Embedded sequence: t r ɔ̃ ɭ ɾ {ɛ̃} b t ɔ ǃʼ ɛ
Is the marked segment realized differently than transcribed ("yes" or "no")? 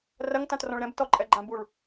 no